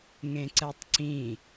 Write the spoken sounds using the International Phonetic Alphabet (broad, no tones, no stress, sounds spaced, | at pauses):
ŋ ẽ ǀ ɛ tˤ ǀ ĩ